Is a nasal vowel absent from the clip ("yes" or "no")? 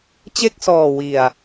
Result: yes